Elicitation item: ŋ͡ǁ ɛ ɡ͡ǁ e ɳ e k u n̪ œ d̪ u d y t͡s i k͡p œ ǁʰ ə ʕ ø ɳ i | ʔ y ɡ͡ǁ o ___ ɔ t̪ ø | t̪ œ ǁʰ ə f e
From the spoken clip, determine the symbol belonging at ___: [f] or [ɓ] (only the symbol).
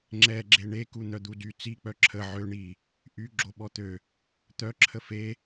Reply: ɓ